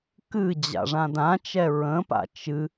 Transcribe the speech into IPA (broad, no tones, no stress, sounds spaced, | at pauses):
k ɨ d͡ʑ a̰ ʐ ã d ã t͡ʃ ɛ ɹ ə̃ p a̰ t͡ʃ ɨ